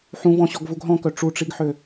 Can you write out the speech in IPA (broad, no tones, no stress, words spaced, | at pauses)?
ħũvɔ̃ɕɔɡvuɡ ɦɔ̃kœ ʈ͡ʂuʈ͡ʂiɡħø